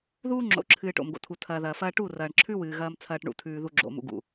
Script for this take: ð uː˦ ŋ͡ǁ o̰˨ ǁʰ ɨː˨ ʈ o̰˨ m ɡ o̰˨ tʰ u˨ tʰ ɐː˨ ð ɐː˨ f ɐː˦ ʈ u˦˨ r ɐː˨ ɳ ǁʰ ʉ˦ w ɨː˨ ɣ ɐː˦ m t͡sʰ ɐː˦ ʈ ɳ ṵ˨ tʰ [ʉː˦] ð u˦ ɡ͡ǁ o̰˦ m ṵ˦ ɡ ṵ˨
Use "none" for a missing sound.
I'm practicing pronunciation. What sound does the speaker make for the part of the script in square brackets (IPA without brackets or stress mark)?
ʉː˦